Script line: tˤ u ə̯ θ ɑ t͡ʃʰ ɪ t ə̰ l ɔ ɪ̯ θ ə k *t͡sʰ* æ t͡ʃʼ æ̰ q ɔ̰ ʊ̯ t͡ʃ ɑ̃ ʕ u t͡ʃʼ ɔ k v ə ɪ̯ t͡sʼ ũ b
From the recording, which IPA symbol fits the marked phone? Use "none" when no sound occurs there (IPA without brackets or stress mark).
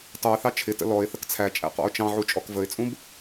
t͡sʰ